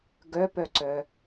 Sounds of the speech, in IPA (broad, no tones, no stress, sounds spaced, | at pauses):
ɡ œ p œ ǀ œ